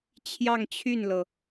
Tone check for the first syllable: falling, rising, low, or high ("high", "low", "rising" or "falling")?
falling